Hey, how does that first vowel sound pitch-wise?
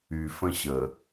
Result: low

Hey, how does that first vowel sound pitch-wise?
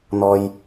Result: low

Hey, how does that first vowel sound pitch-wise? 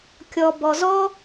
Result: low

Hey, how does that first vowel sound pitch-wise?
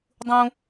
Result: high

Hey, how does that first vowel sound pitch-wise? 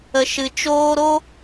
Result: low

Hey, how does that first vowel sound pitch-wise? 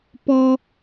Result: high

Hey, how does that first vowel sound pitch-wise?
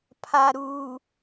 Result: low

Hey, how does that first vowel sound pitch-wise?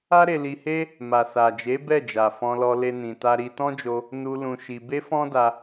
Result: high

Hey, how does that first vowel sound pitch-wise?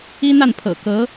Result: high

